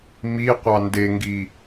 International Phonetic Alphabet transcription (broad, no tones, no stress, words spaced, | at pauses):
mi qʷɑndeŋɡi